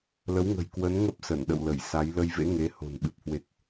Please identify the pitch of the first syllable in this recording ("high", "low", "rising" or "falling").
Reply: rising